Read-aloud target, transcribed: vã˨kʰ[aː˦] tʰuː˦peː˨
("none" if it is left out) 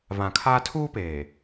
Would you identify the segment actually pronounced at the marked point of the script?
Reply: aː˦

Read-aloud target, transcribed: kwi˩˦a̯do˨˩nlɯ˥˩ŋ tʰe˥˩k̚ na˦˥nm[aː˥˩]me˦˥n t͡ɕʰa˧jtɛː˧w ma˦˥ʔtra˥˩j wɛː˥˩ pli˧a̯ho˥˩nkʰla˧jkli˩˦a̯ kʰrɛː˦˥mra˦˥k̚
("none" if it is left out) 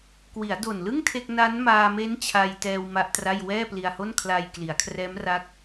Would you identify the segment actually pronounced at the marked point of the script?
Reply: aː˧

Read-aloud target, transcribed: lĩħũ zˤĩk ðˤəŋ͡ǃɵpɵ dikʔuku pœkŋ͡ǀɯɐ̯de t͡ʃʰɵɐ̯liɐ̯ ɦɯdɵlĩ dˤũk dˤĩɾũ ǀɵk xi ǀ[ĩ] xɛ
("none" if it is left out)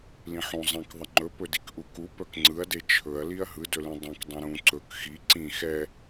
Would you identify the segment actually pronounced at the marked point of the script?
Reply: ĩ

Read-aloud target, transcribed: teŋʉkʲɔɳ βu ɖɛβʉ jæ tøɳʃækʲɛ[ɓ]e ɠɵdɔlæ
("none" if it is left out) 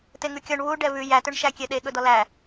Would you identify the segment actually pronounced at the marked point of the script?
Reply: ɗ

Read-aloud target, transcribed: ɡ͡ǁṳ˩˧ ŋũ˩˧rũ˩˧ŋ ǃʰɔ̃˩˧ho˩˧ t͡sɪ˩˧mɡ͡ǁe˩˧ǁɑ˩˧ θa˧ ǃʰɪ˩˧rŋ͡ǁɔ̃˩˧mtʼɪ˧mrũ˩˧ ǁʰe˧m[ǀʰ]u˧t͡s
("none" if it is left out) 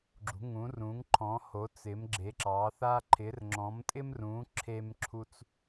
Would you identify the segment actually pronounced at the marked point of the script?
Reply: ǁʰ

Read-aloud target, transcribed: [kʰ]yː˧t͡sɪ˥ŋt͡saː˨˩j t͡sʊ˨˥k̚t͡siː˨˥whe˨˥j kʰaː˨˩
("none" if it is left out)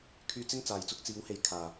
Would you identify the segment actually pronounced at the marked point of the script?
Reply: kʰ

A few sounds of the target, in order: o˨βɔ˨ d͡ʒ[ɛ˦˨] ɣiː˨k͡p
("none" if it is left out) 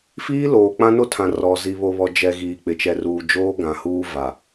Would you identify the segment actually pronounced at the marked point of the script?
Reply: ɛ˨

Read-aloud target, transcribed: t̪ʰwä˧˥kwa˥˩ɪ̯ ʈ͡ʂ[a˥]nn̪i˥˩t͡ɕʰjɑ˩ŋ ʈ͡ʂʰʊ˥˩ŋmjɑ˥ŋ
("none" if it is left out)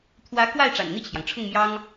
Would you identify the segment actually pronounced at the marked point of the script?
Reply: a̰˨˩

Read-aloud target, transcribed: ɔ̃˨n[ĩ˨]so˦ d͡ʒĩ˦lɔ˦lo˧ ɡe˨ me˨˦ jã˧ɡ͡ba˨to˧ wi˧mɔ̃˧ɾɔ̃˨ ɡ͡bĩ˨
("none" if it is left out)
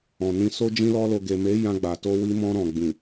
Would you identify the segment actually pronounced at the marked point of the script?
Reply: ĩ˧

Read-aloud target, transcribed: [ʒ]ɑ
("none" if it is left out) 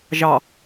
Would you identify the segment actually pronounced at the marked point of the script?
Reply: ʒ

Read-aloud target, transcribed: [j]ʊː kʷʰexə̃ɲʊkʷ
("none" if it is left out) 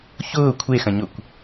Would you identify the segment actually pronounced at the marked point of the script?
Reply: ç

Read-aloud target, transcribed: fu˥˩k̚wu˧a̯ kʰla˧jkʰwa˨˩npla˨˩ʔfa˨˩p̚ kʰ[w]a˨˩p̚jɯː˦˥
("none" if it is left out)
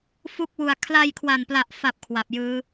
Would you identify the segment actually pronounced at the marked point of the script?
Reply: w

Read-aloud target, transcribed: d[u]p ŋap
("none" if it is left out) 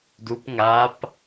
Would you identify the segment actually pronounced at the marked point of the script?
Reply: u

